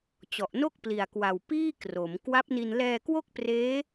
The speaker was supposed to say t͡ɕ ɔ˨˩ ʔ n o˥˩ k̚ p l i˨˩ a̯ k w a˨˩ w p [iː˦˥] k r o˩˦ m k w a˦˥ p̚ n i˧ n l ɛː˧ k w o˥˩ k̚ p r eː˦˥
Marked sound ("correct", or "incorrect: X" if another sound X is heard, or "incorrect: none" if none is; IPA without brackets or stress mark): incorrect: iː˥˩